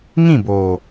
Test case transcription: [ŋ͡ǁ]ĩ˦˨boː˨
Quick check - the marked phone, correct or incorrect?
incorrect: ŋ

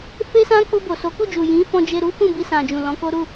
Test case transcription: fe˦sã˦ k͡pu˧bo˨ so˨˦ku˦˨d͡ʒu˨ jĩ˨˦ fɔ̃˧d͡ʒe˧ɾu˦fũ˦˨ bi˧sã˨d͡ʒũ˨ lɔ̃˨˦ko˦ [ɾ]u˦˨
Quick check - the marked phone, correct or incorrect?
correct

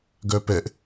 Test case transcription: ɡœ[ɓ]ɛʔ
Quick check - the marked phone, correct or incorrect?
incorrect: p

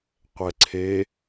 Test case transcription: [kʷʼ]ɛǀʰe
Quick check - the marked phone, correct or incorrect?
incorrect: qʷ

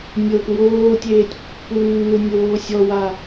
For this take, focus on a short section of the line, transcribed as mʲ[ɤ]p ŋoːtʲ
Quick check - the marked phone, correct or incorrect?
correct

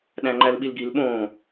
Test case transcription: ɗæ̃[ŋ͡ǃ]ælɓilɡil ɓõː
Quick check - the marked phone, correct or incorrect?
correct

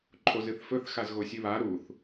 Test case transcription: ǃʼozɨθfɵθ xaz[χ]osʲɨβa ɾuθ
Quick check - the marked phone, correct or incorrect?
incorrect: ɣ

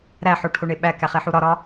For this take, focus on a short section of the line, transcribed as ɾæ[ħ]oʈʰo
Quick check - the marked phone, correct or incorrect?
correct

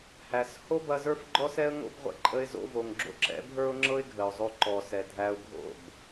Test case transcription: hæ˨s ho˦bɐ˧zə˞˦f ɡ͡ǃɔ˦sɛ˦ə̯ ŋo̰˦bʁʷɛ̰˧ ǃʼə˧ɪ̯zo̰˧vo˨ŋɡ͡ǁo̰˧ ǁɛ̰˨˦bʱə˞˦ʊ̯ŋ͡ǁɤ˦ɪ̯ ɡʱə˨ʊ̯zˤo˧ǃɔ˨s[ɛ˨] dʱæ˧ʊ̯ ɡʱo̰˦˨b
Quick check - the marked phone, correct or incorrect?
correct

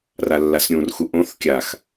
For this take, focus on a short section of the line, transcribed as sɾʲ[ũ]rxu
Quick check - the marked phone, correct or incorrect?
correct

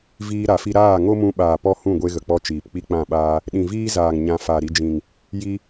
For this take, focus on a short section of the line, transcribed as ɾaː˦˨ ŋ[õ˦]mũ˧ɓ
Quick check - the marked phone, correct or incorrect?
incorrect: o˦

